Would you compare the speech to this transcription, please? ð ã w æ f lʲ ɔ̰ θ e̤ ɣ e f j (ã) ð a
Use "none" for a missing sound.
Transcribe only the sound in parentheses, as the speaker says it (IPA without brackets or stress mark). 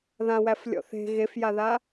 a